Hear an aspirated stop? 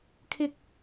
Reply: yes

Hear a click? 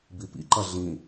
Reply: yes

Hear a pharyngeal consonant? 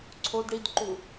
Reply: no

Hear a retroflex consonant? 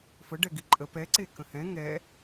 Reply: yes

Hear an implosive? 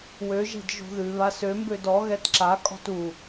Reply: no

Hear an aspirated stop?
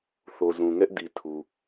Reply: yes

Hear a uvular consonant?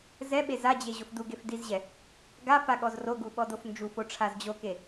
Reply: no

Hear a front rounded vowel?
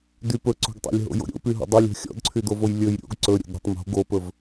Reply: yes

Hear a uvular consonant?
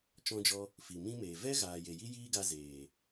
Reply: no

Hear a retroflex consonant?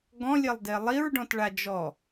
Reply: yes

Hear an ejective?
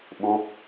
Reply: no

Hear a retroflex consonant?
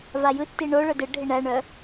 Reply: yes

